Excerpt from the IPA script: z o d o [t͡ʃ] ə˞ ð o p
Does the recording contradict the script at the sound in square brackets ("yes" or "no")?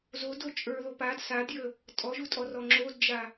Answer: yes